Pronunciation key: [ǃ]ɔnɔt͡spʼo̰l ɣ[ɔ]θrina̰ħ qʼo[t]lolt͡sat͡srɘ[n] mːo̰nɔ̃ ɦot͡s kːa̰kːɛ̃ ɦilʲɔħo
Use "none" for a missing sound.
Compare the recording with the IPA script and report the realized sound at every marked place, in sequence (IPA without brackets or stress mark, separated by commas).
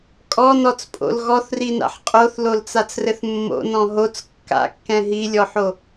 kʼ, ɔ, θ, θ